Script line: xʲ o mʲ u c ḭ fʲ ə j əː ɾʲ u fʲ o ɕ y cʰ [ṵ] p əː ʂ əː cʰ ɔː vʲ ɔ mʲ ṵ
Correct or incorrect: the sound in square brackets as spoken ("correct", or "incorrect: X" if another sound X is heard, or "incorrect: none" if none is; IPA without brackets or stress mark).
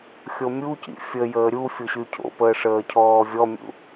incorrect: o̰